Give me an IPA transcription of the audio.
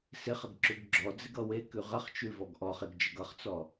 s ɪ χ ə ɡ ǁ ʉ ɡ ɡ͡ǁ ɔ d͡z ɪ ɡ ʌ w e k ʉ ʁ ə χ t͡ʃ ʉ v ɔ ɡ ʔ ɔ χ e ɡ d͡ʒ ə ɡ ʌ χ t͡s ɔ

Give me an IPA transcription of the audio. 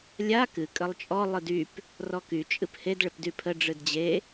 lʲ a k ɨ kʼ ə lˠ t͡ʃʼ ɔ lˠ ɨ d y p | r ɔ k y t͡ʃʼ ɨ p h e d ɭ ɪ p d y pʰ ə ɖ͡ʐ ɨ d d͡ʑ e

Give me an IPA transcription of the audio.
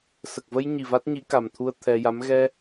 s ə˨˩ k̚ v ə˧ j ɲ i˨˩ v a˦˥ t̚ ɲ i˧˥ k a˨˩ m t̪ʰ u˧ ə̯ t̪ʰ ɛ˧ j a˧˥ m ɣ ɛ˧

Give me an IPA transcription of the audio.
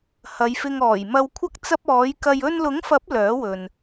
h ɐ˨˧ j f ɪ˧ ŋ ɔː˨˩ j m ɐ˧ w kʷʰ ɐ˥ k̚ t͡s ɐ˥ p̚ ɔː˨˥ j k ɐ˨ j ɵ˧ n l ʊ˨˥ ŋ f ɐ˨˥ p̚ l œː˨˥ w ɵ˨ n

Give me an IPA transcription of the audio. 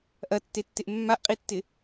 ʔ ɐ tː e tː ɪ ʔ mː a ʔ qʼ i tː ɪ

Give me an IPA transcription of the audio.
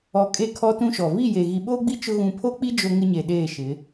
ɔ˨ kʼ e˦˨ kʰ ɔ˦ t ũ˦ ʃ ɔ˨ v i˦˨ j e˨ ɣ i˨ ɓ oː˦ ɡ͡b i˦ t͡ʃ ʊ˦ ɣ ũ˨ pʰ o˦ k͡p i˦ d͡ʒ o˦ ŋ ɪ˦ ɲ e˨ ɗ eː˦˨ ʃ ɪ˨˦

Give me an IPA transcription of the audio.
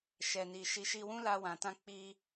ʃ ɛ˨ n i˨ ʃ i˨ ʃ i˧ w ũ˦ l a˧ w ã˨ t ã˧ k͡p i˧

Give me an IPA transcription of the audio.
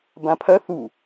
b ã pʰ ɐ θ u

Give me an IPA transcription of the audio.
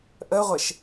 ʔ ə ʁʷ e ʃ

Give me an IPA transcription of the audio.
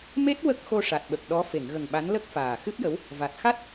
m e˦˥ t̚ w ə˦˥ k̚ x o˧ ʂ a˨˩ t̚ ɓ ə˨˩ k̚ ɗ ɔ˧˥ f e˨˩˨ ŋ ɣ ə˨˩ ŋ ɓ a˧˥ n l ə˦˥ k̚ f aː˨˩ x ɨ˦˥ p̚ j ə˧˥ w | v a˨˩ t̚ x a˦˥ t̚

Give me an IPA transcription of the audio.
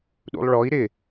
ɗ ṵ lˠ ɭ ɔ i̯ ɾ ɪ

